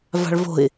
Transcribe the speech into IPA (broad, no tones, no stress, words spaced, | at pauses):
va̤ɭvo̤ɪ̯